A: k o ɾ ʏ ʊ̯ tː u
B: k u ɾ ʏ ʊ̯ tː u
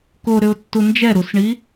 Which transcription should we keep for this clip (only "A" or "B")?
A